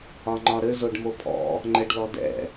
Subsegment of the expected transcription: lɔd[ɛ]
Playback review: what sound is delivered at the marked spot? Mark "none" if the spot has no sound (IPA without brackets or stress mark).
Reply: ɛ̰